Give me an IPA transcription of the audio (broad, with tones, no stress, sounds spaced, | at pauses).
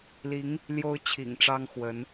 l i˧˥ ŋ | l j o˥ ʊ̯ t͡ɕʰ ḭ˨˩ ŋ ʈ͡ʂ ɑ˥ ŋ x w ə˧˥ n